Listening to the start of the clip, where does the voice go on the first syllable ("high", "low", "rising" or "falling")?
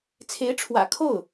rising